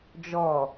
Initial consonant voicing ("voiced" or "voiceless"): voiced